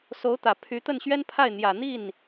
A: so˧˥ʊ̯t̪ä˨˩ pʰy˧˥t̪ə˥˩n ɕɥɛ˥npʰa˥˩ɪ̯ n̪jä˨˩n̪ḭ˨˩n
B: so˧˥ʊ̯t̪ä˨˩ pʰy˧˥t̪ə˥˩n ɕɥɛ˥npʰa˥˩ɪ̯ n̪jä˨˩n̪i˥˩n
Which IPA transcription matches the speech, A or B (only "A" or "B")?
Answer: B